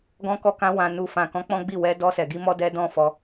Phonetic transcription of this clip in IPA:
ɡɔ̃˧kɔ˧ kã˧wã˨ nu˨ fã˨kɔ̃˨˦ k͡pɔ̃˦ɡ͡bi˦˨ wɛ˧ dɔ˧sɛ˨ɡi˧ mɔ˦dɛ˦ dɔ̃˦fɔ˧

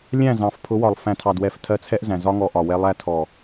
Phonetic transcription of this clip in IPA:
lʲæ̃˦˨zɑ̃˨f pʰʊ˨˦wɒ˨lˠ fæ̃˨tʰɑ˨dwɛ˨f tʰɜ˧t͡sʰɛ˦ʔzæ̃˨ zɒ˦ ŋɔ˧ʔɒ˨wɛ˧ lˠæ˧tʰɔ˨

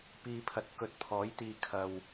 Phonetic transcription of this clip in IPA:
piː˨pʰɐ˨t̚ kɵ˨˥t̚pʰɔː˨˥jt̪iː˧ kʰɐ˧w

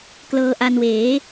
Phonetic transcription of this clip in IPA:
klɤː˧ʔa˧nweː˩˦

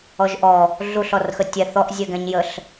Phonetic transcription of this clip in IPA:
ɔʒʔɔ | ɮuɬɔrxə tʲɛ θɔʔ zʲɛɡɛ̃ɲjəɬ

